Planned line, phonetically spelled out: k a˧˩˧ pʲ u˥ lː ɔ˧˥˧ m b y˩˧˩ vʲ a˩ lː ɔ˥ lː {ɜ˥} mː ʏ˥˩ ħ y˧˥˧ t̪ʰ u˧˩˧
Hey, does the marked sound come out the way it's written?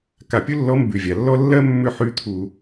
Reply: yes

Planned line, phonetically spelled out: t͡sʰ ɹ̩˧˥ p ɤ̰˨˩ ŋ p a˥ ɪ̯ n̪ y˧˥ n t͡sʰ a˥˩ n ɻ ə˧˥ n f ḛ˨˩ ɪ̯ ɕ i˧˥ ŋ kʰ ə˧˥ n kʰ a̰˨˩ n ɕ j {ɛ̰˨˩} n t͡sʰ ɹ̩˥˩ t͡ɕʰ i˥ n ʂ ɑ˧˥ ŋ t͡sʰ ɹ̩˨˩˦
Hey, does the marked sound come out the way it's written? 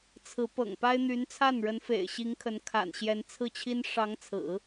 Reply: no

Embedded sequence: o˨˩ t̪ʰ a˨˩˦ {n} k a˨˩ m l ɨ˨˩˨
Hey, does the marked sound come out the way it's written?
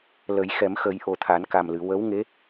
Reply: yes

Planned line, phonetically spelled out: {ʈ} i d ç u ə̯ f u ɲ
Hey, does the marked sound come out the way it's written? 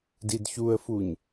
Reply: no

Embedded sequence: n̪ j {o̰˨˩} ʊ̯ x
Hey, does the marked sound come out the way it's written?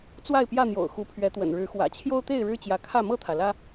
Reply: yes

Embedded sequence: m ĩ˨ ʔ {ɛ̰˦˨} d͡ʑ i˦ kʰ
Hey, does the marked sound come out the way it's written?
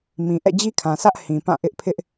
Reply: yes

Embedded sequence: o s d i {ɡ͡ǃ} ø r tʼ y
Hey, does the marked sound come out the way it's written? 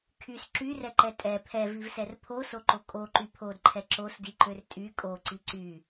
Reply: no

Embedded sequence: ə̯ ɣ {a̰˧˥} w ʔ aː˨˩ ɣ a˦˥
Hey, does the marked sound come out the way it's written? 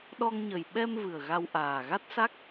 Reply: no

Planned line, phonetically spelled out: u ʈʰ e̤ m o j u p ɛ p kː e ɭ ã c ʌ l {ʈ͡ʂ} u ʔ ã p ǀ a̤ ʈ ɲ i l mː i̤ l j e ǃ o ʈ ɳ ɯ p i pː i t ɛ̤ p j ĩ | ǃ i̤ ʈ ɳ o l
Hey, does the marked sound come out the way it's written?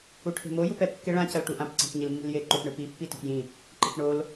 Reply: no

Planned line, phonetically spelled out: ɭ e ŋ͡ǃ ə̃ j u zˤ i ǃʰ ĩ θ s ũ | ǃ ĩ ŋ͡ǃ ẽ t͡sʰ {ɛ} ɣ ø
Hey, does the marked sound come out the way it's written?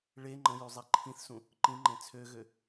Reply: no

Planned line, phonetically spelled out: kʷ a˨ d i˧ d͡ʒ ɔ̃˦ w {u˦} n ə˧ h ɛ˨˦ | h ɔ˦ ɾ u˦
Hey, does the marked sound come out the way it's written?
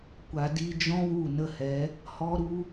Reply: no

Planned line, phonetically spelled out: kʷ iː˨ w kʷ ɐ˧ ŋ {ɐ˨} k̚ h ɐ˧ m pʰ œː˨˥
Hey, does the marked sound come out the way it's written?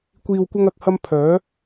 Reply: yes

